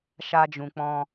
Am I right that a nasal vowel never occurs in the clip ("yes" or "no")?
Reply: no